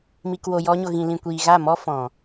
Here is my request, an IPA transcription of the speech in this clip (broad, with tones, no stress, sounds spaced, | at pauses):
m i˨ k w o˨ j ɔ˧ ɲ o˨ ɣ ĩ˨ l ĩ˨ kʷ iː˨ ɣ a˦˨ m ɔ˦ f ɔ̃˨